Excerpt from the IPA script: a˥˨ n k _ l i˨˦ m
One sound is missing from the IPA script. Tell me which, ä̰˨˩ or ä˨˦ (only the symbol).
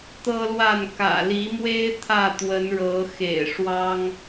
ä̰˨˩